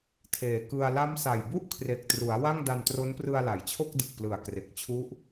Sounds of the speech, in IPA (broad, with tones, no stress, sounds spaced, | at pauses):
tʰ eː˨˩ k ɯ˧ a̯ l a˦˥ m s a˨˩ j b u˥˩ ʔ kʰ r e˨˩ k̚ t r u˩˦ a̯ w a˥˩ ŋ d a˧ n t r o˦˥ n p r ɯ˧ a̯ l a˩˦ j t͡ɕʰ o˥˩ k̚ d ɯ˨˩ k̚ p l ɯ˨˩ a̯ k r e˨˩ k̚ t͡ɕʰ u˦˥ ʔ